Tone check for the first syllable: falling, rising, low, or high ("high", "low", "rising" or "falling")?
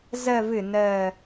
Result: low